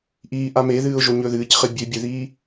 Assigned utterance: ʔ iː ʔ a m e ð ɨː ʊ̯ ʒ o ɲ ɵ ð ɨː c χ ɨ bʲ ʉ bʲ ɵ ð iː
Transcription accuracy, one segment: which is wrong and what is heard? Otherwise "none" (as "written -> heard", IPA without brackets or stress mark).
none